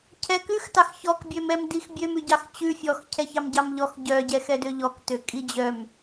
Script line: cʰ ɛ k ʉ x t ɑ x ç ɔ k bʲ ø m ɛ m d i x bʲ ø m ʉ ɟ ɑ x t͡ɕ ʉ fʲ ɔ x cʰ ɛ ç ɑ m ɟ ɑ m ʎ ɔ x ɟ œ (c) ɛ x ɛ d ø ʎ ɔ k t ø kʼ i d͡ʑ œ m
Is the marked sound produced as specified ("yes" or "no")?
no